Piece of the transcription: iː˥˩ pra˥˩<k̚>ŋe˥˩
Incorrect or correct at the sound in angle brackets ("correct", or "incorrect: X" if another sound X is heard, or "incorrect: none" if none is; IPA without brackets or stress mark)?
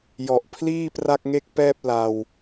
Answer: correct